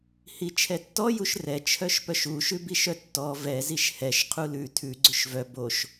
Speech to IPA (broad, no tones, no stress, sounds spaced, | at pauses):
h i t͡ʃʰ ɛ tː ɔ j u ʃ r ɛ t͡ʃʰ œ ʃ p œ ʃ u ʃ ʉ b i ʃ œ tː ɔ v ɛ z i ʃ h ɛ ʃ qʰ u l ʉ tʰ ʉ ɡ͡ǀ ʉ ʃ v œ b o ʃ